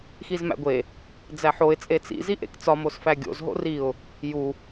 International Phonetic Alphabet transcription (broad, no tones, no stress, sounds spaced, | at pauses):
x i z m æ̰ ɡʷ e | d͡z æ ħ o ɪ̯ t͡sʼ e t͡s ḭ z i ʔ ḛ k t͡s ɒ m o s f æ ɡʲ o̰ z ɦ o̰ r i ʊ̯ | j u